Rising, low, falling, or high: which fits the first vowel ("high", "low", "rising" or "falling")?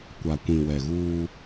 low